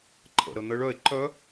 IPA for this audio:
ǃʰə̰ɾə n̪ə ɭœe̯ ǃœ

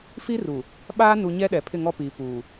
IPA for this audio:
fi˦ru˨ | ɓaː˦nu˨ ɲɛ˦ɗɛ˨ pʰɪ˦˨ŋɔ˦piː˨ puː˨

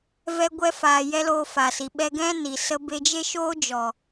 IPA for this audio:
vɛ˧ɡʷɛ˧faː˨ jɛ˦loː˧fa˨si˨ ɓɛ˧ɡɛ̃˦ ni˨ sə˧be˧d͡ʒe˦ ʃoː˦d͡ʒɔ˨

